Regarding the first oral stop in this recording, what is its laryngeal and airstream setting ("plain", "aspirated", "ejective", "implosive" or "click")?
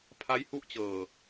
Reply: aspirated